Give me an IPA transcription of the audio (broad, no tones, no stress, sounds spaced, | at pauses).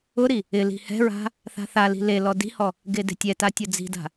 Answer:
ʊ ɾ i | ɪ l i̤ h ɛ̤ ɹ a̤ | θ a̤ θ a l i̤ l e l ɔ d i̤ h ɔ | ɡ e d e̤ tʲ ɛ t a tʲ ʊ d͡z i̤ d a̤